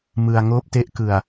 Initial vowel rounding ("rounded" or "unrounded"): unrounded